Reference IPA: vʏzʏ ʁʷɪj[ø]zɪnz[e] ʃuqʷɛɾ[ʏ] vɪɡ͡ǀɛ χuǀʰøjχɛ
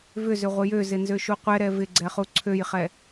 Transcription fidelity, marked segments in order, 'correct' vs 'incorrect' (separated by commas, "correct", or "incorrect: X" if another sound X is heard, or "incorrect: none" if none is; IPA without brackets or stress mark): correct, incorrect: ø, incorrect: ɛ